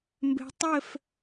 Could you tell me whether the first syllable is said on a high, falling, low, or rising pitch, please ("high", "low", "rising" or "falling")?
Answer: rising